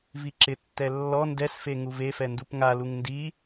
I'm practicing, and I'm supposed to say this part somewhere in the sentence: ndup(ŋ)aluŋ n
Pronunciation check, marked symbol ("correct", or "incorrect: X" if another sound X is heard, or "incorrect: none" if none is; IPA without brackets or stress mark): correct